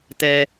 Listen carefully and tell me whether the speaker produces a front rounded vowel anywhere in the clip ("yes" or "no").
no